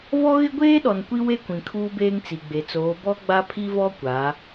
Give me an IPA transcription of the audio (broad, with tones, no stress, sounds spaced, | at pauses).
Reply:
v ɔ˦ ɣ ɪ˦ ɡʷ eː˦ ɗ ɔ˨ n kʷ i˦ w e˦ kʷ ĩ˨ kʰ uː˦ b eː˦ ŋ t͡s i˨ ɡ͡b e˨ t͡s oː˨˦ b ɔ˦ ɡ͡b a˦ pʰ i˦ v ɔ˦ kʷ a˨˦